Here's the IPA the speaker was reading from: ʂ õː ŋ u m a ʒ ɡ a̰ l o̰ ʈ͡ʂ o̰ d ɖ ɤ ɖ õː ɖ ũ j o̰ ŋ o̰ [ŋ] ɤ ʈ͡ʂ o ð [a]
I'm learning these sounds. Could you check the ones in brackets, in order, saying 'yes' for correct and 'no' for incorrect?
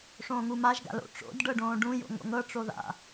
yes, no

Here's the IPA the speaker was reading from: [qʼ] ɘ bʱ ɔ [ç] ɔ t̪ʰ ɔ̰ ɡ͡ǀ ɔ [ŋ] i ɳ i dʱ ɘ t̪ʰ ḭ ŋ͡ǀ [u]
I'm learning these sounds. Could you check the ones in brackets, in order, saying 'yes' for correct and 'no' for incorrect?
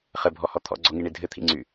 no, no, yes, no

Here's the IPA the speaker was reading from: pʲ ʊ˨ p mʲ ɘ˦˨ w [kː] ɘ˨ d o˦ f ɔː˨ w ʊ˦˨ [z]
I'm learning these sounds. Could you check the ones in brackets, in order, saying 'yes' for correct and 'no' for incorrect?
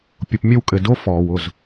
no, yes

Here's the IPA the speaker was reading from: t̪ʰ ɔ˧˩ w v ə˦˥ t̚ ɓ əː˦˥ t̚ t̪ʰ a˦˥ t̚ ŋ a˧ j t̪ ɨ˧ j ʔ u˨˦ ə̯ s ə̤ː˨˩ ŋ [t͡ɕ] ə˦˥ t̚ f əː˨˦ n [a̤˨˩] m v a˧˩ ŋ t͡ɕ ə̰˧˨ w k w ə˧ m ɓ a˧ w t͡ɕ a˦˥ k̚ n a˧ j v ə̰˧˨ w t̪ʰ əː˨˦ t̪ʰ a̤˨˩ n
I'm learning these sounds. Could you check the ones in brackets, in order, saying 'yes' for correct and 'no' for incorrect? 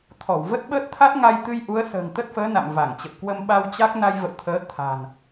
no, no

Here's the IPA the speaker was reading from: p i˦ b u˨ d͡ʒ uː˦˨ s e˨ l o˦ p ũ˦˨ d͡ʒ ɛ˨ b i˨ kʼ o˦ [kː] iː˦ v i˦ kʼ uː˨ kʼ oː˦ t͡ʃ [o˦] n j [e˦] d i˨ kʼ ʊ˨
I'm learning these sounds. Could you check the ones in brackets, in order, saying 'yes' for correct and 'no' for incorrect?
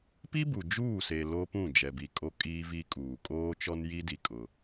no, no, no

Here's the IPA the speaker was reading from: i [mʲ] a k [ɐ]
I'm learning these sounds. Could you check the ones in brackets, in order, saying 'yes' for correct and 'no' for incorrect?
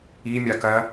yes, yes

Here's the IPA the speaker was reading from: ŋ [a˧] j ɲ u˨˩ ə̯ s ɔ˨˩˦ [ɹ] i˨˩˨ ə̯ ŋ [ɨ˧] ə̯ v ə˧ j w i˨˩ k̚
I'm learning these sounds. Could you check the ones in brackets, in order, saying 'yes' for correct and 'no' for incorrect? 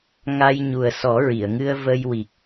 yes, yes, yes

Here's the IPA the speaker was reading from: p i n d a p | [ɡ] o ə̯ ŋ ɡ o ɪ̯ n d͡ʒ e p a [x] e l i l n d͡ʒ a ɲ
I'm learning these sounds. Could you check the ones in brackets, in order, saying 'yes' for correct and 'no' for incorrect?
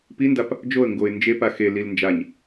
no, yes

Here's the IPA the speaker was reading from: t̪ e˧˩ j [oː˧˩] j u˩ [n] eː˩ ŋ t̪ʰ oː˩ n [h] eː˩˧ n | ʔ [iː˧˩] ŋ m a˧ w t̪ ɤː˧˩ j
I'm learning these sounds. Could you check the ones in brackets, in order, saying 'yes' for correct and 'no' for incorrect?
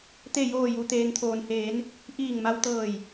yes, no, yes, yes

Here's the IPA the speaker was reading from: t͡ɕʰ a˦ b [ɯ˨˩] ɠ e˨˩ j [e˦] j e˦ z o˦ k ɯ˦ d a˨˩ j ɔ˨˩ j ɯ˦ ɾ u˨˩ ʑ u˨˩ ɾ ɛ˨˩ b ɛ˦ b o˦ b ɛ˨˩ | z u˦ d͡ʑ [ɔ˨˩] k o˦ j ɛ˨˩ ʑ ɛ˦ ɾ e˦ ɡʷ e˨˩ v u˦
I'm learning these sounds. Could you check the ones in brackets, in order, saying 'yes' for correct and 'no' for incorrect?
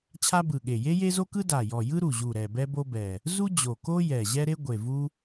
yes, yes, no

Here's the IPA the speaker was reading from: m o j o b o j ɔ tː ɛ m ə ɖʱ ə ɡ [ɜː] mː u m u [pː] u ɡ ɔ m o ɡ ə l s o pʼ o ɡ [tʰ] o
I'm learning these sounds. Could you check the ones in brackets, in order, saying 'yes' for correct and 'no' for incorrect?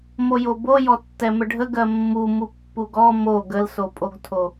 no, yes, yes

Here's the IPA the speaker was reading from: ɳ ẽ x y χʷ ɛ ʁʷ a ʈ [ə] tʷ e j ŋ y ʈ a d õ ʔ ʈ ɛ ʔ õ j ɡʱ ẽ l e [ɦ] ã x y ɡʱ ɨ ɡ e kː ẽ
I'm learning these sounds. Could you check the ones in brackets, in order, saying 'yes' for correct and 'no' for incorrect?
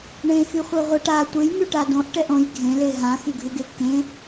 no, yes

